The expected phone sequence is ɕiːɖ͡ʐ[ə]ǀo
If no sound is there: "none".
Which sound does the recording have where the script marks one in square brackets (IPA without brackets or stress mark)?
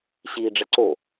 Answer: ə